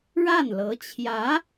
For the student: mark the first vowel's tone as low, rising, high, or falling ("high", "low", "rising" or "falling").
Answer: falling